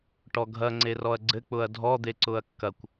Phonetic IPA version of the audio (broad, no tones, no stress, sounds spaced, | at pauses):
ʈ ɔ ɡʱ ɐ ŋ͡ǀ e r ɔ ɐ̯ ɡ͡ǀ ɘ k͡p ʊ ɐ̯ dʱ ɔ d̪ e ǀ ʊ ɐ̯ kː ɐ kʷ